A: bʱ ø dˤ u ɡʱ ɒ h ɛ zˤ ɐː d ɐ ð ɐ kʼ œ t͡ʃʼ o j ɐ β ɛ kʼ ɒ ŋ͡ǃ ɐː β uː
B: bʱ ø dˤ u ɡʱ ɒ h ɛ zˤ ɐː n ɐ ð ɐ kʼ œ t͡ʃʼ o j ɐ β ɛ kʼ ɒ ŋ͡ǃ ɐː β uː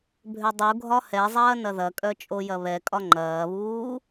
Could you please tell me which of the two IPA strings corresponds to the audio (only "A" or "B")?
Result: B